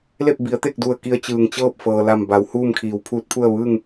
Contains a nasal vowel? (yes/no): no